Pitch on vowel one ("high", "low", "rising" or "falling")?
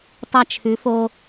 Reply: high